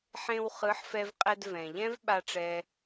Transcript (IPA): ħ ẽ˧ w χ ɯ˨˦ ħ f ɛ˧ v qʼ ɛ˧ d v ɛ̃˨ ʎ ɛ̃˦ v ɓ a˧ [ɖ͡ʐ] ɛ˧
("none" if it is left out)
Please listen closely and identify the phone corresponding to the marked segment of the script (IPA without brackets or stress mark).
ʈ͡ʂ